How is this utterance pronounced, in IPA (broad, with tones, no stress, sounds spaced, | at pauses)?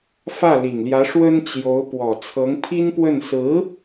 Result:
f ä˥˩ l i˨˩ ŋ l j ä˧˥ ʂ w ə˥ n t͡ɕ j o˧˥ ʊ̯ p w ɔ˨˩ t͡sʰ ɤ˧˥ ŋ pʰ i˥ n p w ə˥˩ n s ɹ̩˧˥